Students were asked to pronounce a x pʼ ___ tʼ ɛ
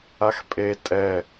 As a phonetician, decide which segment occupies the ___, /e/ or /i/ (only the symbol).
e